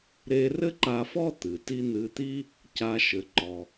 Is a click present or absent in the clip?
present